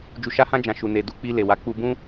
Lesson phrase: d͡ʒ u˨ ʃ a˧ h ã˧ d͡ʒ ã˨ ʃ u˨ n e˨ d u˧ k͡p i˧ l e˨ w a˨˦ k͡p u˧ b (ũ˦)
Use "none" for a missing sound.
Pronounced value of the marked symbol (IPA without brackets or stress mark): ũ˦